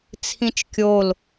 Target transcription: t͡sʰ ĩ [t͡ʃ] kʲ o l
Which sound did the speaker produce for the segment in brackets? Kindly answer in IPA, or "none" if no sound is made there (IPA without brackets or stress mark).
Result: t͡ʃ